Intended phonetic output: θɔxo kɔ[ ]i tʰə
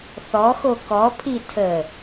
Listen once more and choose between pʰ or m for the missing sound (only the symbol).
pʰ